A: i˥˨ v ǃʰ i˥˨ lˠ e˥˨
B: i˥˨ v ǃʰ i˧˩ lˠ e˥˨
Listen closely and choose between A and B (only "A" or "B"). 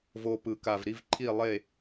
A